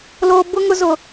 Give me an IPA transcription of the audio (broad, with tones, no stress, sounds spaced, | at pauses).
l oː˦ b ʊ˦ ŋ ʊ˦ z ʊ˦